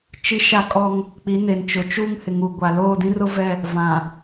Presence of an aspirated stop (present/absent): absent